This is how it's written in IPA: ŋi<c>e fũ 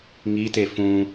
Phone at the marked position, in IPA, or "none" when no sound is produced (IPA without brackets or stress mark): t